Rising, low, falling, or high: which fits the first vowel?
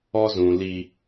high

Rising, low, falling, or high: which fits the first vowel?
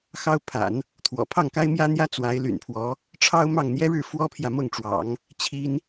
high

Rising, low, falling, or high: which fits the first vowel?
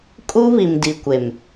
high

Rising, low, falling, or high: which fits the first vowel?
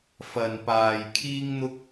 low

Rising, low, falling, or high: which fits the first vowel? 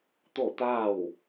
falling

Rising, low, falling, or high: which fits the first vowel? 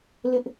high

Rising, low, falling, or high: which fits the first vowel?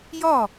falling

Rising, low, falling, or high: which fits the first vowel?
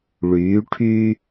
rising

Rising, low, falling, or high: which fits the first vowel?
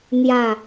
low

